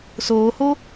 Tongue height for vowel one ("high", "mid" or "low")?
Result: mid